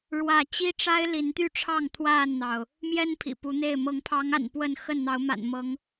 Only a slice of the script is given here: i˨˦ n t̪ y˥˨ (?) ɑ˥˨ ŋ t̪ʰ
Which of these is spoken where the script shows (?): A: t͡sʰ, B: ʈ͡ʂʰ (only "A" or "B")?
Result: B